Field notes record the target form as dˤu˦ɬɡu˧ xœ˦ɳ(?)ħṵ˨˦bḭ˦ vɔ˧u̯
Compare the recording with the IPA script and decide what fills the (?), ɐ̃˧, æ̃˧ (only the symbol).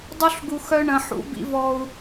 ɐ̃˧